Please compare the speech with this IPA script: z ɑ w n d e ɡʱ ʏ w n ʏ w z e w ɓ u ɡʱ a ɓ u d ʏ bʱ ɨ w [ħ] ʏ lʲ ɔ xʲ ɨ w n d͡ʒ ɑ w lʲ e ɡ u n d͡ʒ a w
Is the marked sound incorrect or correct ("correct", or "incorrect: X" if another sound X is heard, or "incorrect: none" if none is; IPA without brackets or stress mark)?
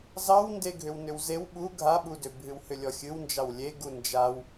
incorrect: h